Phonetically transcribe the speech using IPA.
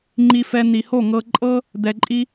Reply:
ŋ͡ǃi˧fɛ˧ n̪i˨ho˦˨ŋɤ˧ ǃʼɤ˦ | d̪ɛ˨ǃʼi˧

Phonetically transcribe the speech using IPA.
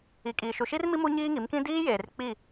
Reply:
i˨kʼiː˨ ʃu˨ʃi˦rmi˦ mu˦ɲiː˦ŋi˨˦mkĩ˦ diː˦ jeː˨rk͡pi˦˨

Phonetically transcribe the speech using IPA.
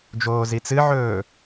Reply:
d͡ʒoːzit͡sɨʕɵː

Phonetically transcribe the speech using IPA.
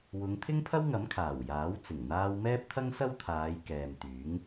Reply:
wʊ˨˧ŋ t̪ʰɪ˥ŋpʰɐ˥wŋɐ˨˥m kʰaː˨˩wjaː˨˥wt͡sɪ˨˩ŋ n̪aː˧wmɛː˥p̚t̪ʰɐ˥ŋ sɐ˥wt̪ʰaː˨˧j kɛː˨mt̪yː˨˥ŋ

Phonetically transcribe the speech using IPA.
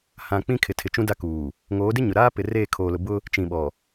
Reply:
hã˨ k͡pĩ˦kʰɪ˨tʰɪ˨t͡ʃũ˦ da˦kuː˨ | ŋoː˨˦dɪ˦ɲʊ˨ ɾaː˦pɪ˨ reː˦˨ kʰoː˨lʊ˨bʊ˦ | t͡ʃĩ˨ ɓɔ˨

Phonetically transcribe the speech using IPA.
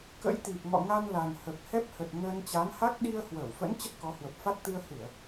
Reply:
kə̰˧˥jt̪i˨˩p̚ŋɔ̰˧˨ ŋa˧nla˨˩nhə˨˩p̚ hɛ˦˥p̚hə˨˩t̚ ŋəː˧n t͡ɕa˨˦nha˦˥k̚ ɗi˧ə̯hwəː˧˩wfə̰˧˥n t͡ɕə˦˥t̚kɔ˨˦hwə˨˩p̚fa˦˥t̚ t̪ɨ˧ə̯hɨ˧˩˨ə̯

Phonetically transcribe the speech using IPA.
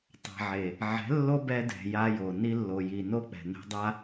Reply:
tˤa̤˨ʕe˨ | ʕɛ̤˨˦lːo˦bɛ˧dɛ̤˨ ja˧jo˨ ni˧lːo˨ji˨no˦ k͡pɛ̤˨nɛ̤˧dˤa˦

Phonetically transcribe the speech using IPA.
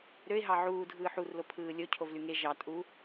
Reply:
ɾøɪ̯ɦɑ ʕuː dʱɯːħurlo pʰɯːlʲocʰov lyŋe ʒɑ tʼu

